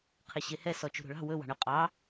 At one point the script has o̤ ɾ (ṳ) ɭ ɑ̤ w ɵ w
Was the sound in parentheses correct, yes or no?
no